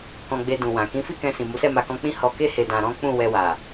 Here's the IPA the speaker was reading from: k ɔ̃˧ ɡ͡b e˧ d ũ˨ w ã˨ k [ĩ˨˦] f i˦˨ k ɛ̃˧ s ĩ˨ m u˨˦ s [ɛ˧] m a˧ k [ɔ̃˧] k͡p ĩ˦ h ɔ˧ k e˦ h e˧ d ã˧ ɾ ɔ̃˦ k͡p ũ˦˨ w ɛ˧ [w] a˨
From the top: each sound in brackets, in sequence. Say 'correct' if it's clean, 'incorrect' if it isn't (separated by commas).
correct, incorrect, correct, correct